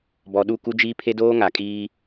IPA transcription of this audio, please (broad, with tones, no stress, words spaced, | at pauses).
bɔ˨ɗu˦˨ku˦d͡ʒiː˦ pʰe˦doː˦ŋa˨kʼiː˦